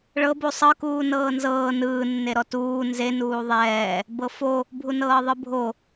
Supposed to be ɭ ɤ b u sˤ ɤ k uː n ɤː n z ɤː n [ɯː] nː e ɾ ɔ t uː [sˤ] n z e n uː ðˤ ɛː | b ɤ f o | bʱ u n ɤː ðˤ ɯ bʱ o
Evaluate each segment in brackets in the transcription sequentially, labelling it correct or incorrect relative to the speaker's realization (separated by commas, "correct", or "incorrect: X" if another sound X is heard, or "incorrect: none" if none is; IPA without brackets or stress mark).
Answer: correct, incorrect: none